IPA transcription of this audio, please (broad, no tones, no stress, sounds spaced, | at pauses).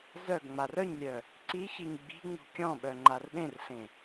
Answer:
z œ ɡ ŋ͡m a r œ ɲ lʲ œ | ǀ i ç i ɲ ɡ͡b i̤ ŋ͡m ṳ kʲ ɔ̃ ɓ œ ŋ͡ǃ a r ɗ ẽ r ɬ ẽ